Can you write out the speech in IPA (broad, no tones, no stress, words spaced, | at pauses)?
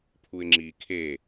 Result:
pʰuɪ̯ŋ͡ǁi kʰe